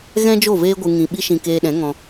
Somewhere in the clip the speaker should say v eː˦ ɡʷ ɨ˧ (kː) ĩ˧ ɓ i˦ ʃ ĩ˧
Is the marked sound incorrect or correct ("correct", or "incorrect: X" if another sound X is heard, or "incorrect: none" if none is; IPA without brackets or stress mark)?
incorrect: ŋ